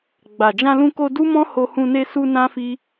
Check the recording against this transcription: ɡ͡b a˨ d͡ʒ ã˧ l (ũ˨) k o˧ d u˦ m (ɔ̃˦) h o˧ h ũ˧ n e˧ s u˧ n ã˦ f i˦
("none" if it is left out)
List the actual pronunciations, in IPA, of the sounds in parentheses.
ũ˧, ɔ̃˦

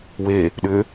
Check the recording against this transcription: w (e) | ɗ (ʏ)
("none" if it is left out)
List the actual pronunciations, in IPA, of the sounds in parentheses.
e, ʏ

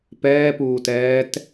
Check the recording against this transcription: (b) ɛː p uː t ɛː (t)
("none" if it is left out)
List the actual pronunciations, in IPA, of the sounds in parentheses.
p, t

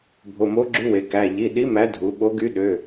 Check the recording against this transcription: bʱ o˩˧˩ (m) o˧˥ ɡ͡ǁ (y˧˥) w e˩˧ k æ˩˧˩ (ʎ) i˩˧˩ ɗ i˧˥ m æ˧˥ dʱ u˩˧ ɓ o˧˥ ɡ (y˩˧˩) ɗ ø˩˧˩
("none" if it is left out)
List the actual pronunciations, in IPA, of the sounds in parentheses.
m, y˧˥, ʎ, y˧˥

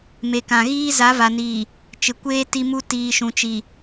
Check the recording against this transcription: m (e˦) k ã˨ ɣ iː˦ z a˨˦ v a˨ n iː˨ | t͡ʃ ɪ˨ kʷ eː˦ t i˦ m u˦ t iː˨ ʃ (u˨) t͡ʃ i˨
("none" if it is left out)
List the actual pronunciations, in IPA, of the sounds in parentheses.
e˨, ũ˨

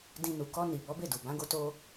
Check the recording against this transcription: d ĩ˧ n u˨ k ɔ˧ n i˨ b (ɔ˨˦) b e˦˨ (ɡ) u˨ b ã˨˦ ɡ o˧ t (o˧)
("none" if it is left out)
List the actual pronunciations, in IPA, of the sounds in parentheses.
ɔ˨˦, d, o˧

